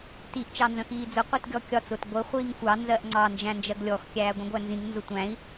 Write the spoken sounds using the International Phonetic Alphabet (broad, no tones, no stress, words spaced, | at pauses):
tiʔ t͡ʃɑnzə̃xiːd͡zʊ qʷitɡʲɔkʲɒt͡s ʊt ɡʷə χʷiːŋxʷɑ nzɜʔŋ͡ǀɑ nd͡ʒæ̃nd͡ʒɜɡlʲɔx kʲæːɡʷĩɡʷænzĩŋ nzʊtʷæ̃i̯